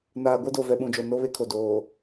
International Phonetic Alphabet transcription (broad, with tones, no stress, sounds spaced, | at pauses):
n aː˨ ɡʷ ɛ˦ d o˨ v ɛ˨ ɓ ũ˨ d͡ʒ o˨ n o˦ β e˦ kʰ o˨ d oː˨